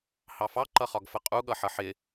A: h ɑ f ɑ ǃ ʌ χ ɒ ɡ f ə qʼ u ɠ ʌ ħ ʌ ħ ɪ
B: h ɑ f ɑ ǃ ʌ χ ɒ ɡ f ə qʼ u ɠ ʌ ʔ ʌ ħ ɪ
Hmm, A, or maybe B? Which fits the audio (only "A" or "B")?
A